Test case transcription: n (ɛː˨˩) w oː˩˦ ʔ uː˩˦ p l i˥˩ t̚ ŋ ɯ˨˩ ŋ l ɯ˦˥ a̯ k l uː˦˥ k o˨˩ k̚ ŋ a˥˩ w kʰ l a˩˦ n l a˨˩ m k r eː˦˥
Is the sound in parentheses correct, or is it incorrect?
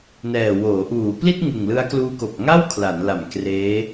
correct